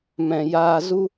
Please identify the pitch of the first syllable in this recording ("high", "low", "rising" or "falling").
low